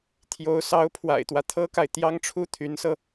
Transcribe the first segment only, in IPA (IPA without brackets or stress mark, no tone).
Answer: t̪ʰ